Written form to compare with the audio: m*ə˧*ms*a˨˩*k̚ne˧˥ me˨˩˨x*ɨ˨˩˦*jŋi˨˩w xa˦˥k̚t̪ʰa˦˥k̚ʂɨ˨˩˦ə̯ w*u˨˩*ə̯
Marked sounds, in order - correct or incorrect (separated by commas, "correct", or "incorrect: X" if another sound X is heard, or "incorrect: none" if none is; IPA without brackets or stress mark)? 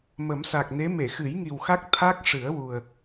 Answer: incorrect: ə˨˩˦, correct, correct, correct